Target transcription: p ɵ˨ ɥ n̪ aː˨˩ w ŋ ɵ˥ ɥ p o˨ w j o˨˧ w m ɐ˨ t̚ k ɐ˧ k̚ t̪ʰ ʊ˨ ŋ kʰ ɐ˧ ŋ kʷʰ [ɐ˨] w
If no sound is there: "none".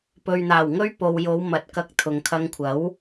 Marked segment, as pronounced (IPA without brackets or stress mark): ɐ˨˥